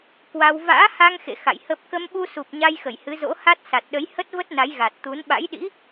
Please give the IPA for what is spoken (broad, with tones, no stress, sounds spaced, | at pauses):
k w a˧ w v a̰ː˧˥ h a˧ ŋ x ḛ˧˨ x a̰˧˨ j h ə˦˥ p̚ k ə˧ m ɓ u˧ s u˨˩ p̚ ɲ a˧ j x ə˧˩ j h ɨ˨˦ z o̰˧˥ h a˦˥ t̚ s a˨˩ t̚ ɗ ə˨˦ j h ə˦˥ t̚ v ə˦˥ t̚ n a˨˦ j ɣ a˨˩ t̚ t̪ u˨˦ n ɓ a̰˧˥ j ɗ ḭ˧˥